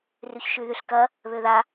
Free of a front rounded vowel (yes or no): no